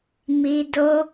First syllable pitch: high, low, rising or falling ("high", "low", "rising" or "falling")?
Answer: high